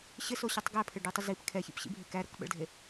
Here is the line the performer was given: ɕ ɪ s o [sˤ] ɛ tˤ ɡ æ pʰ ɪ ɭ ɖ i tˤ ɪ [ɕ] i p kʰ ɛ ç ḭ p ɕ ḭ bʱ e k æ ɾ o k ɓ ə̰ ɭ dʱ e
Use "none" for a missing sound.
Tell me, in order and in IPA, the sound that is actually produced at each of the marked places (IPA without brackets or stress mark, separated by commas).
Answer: ɕ, z